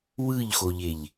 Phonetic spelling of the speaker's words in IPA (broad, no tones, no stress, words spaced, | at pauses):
wɯʎxoʎeʎ